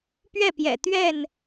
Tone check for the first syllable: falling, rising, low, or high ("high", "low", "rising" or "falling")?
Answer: falling